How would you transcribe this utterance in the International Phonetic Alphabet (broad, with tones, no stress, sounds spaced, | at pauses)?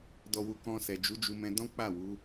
d ɔ˨ w u˨ k ɔ̃˧ s ɛ˨ d͡ʒ u˨˦ d͡ʒ u˧ m ɛ̃˧ d ɔ̃˦ k͡p a˦˨ w u˨˦